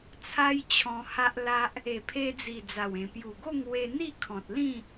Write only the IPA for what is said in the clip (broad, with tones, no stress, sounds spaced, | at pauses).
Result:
t͡sʰ a˦ j t͡ɕʰ ɔ̃˧ h a˦ ʔ l a˦ ʔ | e˨˩ pʰ e˧ d͡z i˨˩ d͡z a˨˩ w ẽ˨˩ p j u˨˩ ɡ o˥˧ ŋ w e˧ n̪ i˥˧ kʰ ɔ̃˨ t̚ l ĩ˥˧